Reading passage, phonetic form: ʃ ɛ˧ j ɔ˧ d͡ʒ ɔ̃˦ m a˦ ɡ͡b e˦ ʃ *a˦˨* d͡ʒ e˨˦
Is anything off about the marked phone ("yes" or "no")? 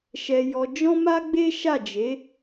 no